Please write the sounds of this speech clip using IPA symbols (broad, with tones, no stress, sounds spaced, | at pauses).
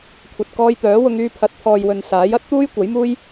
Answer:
kʷʰ ɐ˨ t̚ k ɔː˧ j t̪ œː˨˥ w ʊ˧ ŋ yː˧ pʰ ɐ˨˥ t̚ t̪ʰ ɔː˨ j w ɵ˨ n s aː˨˥ j ɐ˥ t̚ t̪ uː˥ j kʷ ɐ˨˥ j m uː˥ j